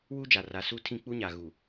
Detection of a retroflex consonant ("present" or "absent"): absent